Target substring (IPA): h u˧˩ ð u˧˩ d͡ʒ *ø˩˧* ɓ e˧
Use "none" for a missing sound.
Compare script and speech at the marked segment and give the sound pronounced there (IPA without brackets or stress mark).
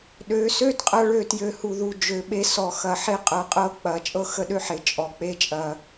ø˩˧